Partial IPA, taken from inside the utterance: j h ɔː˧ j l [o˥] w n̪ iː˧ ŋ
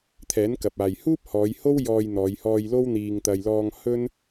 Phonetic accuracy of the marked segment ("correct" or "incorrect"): correct